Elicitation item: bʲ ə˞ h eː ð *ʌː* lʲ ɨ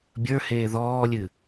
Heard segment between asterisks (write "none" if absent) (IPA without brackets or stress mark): ɔː